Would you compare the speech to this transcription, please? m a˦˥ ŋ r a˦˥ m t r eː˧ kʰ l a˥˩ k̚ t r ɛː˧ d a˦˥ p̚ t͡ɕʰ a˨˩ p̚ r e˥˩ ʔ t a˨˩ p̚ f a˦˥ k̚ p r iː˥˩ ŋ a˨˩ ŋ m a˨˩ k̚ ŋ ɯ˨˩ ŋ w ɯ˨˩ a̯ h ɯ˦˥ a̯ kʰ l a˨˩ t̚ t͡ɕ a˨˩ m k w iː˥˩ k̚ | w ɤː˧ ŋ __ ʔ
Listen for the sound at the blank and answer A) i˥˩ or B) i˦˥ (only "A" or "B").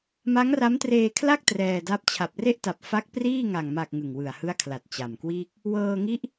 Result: B